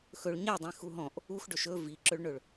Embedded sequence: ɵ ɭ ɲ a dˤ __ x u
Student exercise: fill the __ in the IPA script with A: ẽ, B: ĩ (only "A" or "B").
B